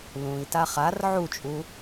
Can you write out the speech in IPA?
l ũ i̯ t a χ a r ʕ u t͡ʃʼ u

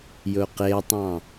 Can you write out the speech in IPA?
j ɵ q e tˤ ɑ̃

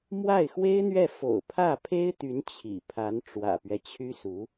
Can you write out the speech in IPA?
m w a˥˩ ɪ̯ x w e˥ ɪ̯ n̪ ɥ ɛ˥˩ f o̰˨˩ ʊ̯ pʰ ä˥˩ pʰ e˥ ɪ̯ t̪ y˧˥ n t͡ɕʰ ḭ˨˩ pʰ a˧˥ n ʈ͡ʂ w ä̰˨˩ p ɥ ɛ˦ t͡ɕʰ y˥ s u˧˥

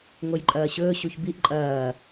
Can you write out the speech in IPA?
ŋ o j ǃʼ ɐː ɕ ɵː ɕ u ç b i ʔ ǃʼ ɐː

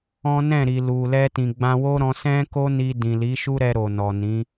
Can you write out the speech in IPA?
ɔ̃˦ n ɛ̃˦˨ ɾ i˨ l u˨ l ɛ˧ t ĩ˨ ɡ͡b ã˧ w o˦ ɾ ɔ̃˧ s ɛ̃˦ k o˦ n i˧ d ĩ˨ l i˨˦ ʃ u˦ ɾ ɛ˧ ɾ o˨ n ɔ˨ n ĩ˨˦

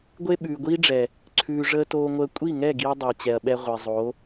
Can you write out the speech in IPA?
ɡʷ e˦ ɓ ʉː˨ ɡʷ iː˦ ɖ͡ʐ ɛ˨ | ǀʰ ʉː˧ ʐ əː˦ t oː˧ ŋʷ əː˧ kʷʼ i˦˨ ŋ ɛ˦˨ ɡ i˧ ɐ̯ dˤ əː˨ t͡ɕ ɛ˨ ɐ̯ ɓ ɛ˧ ʁʷ e˨ zˤ o˨˦

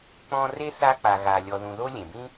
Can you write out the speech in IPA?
k͡p ɔ̃˦ r e˥ θ a˦ k͡p a˨ ɣ a˨ lʲ ɔ˨ ð ũ˨ ð o˦ lʲ ẽ˩ b ĩ˥

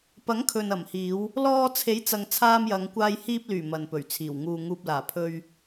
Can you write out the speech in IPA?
p ɐ˨˥ ŋ kʰ ɵ˨ n ɐ˨˩ m h iː˨˧ w | l ɔː˧ t͡sʰ e˨˥ j t͡s ɐ˨ ŋ t͡sʰ aː˧ m j ɐ˨˧ ŋ kʷ aː˧ j h iː˧ p̚ l yː˨˩ m ɐ˨ n p ɵ˨˩ ɥ t͡sʰ iː˨˩ w ŋ uː˨ ŋ uː˨ p̚ l aː˨˩ pʰ ɵ˧ ɥ

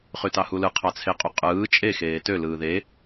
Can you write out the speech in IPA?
χ y t ɑ h u l ɯ qʰ ɑ t͡sʰ e qʼ u qʼ ɯː t͡ʃʼ e x eː t ø l ɯː ð e

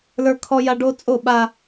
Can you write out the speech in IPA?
l ə˞˦ kʰ ɔ˦ j a˦ ɖ o˦ t͡sʼ o˦˨ ɓ a˦

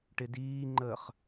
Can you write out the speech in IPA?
ʈ ɪ d iː ŋ͡ǃ əː χ

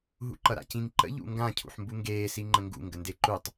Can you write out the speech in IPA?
ɦ ṵ ǃ ʌ ɾ a̰ c ĩ ŋ ǃ ə̰ ʎ ṵ ŋ ɡ ã cʰ ṵ ħ m b u ŋ ɡ eː s i ŋ͡ǃ ə̃ ŋ ɡ ṵ ŋ ɡ ə n d e ǃ u tˤ

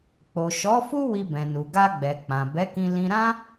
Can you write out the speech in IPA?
k͡p o˨ ʃ ɔ˨˦ f u˦ w i˧ b ɛ̃˨ n u˨ ɡ a˧ ɡ͡b ɛ˨ k͡p ã˨ b ɛ˨˦ k ĩ˧ l ĩ˧ ɾ ã˦

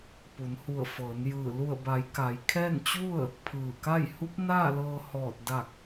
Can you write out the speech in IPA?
p u˩˧ n h u˧˩ ə̯ f ɤː˩˧ n j ɯː˧˩ l u˧˩ ə̯ b a˩˧ j k a˩˧ j kʰ ɛː˥˨ n t͡ɕ u˥˨ ə̯ | pʰ ɯː˧˩ k a˥˨ j h u˧˥ p̚ n aː˥˨ l ɤː˧ h ɔː˧˩ t̚ d a˧˩ k̚

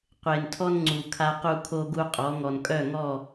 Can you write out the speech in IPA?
qʷ e˨ n tʰ ɔ˦ n ŋ͡ǀ u˨ kʰ a˦ q u˦ kʰ o˦ ɡ u˦ qʼ ɔ˨˦ ŋ ɔ˨ n kʼ œ˦˨ ŋ ɔ˦˨

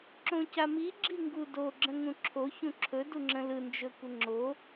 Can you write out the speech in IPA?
ǁ õ c a m i ɡ͡ǁ i ŋ ɡ u d o ɡ͡ǁ ə̃ ŋ ũ ǁʰ o ç ũ ǁʰ ɵ d u ŋ͡ǁ ə̃ l ɯ n d͡ʒ ɵ kʷ ə ŋ͡ǁ o

